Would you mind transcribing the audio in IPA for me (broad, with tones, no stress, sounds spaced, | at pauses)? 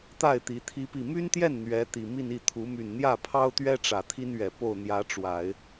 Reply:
t̪ a˥˩ ɪ̯ t̪ i˧˥ t̪ʰ i˥ p i˥˩ m y˥ n t̪ j ɛ˥˩ n n̪ ɥ ɛ˧˥ t̪ i˨˩ m i˥˧ n i˥˩ t̪ʰ u˧˥ m y˨˩ n n̪ j ä˥˩ pʰ ɑ˥ ʊ̯ t̪ ɥ ɛ˥ ʈ͡ʂ ä˨˩ t̪ʰ i˥ n ɥ ɛ˨˩ p o˥˩ ʊ̯ n̪ j ä˧˥ ʈ͡ʂ w a˨˩˦ ɪ̯